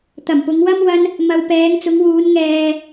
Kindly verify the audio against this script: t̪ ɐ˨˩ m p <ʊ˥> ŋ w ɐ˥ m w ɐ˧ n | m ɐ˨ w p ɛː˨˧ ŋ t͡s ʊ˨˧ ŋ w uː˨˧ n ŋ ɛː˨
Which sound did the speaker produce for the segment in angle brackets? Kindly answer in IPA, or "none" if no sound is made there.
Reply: ʊ˨˧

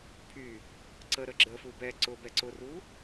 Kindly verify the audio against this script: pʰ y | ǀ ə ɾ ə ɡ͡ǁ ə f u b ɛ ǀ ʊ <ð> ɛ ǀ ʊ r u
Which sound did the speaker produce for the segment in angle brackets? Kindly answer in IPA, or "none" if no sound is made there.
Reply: b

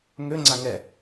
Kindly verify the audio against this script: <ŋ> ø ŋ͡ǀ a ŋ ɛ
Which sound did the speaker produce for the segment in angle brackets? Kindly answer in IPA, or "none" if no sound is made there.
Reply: ŋ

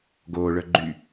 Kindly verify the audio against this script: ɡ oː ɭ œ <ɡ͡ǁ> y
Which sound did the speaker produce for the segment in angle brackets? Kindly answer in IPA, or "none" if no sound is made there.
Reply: ɡ͡ǃ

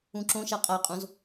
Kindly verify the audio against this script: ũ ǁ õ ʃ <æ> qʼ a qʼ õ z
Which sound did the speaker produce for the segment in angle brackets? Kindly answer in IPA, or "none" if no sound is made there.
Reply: a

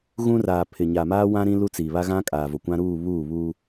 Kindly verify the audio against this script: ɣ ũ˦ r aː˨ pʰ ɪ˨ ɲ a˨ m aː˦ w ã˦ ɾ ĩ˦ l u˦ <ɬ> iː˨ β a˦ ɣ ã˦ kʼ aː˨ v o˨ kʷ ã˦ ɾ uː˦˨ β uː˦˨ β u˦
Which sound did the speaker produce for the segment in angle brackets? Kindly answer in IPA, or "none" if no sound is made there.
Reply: t͡s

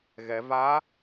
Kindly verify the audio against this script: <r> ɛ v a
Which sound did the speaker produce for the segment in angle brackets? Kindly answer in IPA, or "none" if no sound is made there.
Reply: ɣ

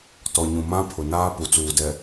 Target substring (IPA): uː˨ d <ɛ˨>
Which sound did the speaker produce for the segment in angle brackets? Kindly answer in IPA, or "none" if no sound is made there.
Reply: ɛ˨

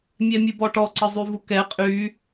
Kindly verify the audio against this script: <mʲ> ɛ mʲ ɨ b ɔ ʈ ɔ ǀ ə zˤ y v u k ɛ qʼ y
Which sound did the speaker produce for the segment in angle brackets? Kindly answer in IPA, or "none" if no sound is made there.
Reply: mʲ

